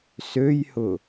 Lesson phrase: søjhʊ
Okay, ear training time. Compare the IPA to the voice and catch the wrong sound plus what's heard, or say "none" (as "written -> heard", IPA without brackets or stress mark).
none